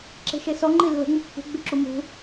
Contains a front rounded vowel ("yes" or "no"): yes